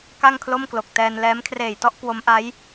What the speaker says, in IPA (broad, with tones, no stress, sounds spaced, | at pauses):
k a˥˩ ŋ kʰ l o˥˩ m k l o˨˩ k̚ t ɛː˧ n l ɛː˦˥ m kʰ r eː˨˩ j t ɔ˥˩ ʔ k w o˦˥ m ʔ a˦˥ j